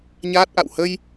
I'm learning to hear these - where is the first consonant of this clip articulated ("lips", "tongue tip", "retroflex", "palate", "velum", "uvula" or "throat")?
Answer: palate